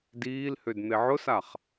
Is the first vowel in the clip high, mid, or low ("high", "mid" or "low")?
high